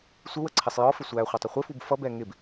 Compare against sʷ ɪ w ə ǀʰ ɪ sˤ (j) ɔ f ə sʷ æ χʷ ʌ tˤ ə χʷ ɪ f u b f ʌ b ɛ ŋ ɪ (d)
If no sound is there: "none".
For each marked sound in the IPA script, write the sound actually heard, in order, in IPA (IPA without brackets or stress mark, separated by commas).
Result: j, b